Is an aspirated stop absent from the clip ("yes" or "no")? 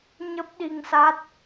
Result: yes